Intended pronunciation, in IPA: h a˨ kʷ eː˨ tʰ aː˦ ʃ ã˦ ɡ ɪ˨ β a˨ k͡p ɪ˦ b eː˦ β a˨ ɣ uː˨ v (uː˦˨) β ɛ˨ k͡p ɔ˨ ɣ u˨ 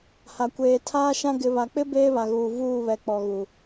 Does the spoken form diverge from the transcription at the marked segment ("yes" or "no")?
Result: no